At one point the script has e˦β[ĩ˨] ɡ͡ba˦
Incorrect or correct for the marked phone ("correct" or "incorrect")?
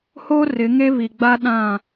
incorrect